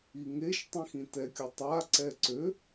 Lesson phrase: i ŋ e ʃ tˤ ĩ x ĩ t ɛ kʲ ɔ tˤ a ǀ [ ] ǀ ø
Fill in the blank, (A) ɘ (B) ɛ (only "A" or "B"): B